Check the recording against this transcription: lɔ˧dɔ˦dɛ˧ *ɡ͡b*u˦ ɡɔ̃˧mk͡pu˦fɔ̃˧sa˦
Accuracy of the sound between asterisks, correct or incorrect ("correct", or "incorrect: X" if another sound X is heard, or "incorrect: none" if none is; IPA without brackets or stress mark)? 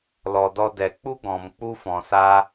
incorrect: k͡p